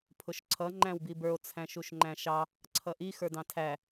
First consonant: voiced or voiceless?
voiceless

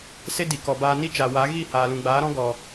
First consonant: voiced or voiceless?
voiceless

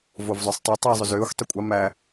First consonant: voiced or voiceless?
voiced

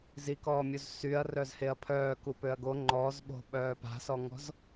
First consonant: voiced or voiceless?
voiced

